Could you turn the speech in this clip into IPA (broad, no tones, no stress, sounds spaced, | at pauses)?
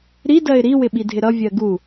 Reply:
ɾ i d ɜ ɪ̯ ɾ i w ɪ ɓ i dʱ ɪ ɾ ʌ vʲ ɜ ɡ u